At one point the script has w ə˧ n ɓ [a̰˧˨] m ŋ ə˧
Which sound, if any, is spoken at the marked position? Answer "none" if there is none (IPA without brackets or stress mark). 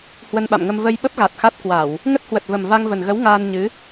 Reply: a̰˧˨